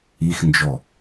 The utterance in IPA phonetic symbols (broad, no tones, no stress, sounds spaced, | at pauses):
i x n d͡ʒ ɔ